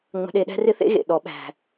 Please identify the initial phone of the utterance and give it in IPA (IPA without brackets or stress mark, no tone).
ŋ͡m